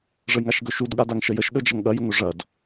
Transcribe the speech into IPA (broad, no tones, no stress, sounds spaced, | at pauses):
ʐ ə j ŋ a ʃ ɡ ɵ ʃ u d ɠ a d a ŋ ʃ ə j ə ʃ ɗ ɵ d͡ʒ ɐ ŋ ɠ ɐ j ʊ ŋ ɵ ʐ ɐ d